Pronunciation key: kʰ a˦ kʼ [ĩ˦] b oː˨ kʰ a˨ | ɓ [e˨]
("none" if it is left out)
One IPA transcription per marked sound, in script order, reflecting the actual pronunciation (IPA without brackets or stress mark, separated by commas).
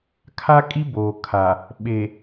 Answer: i˦, e˨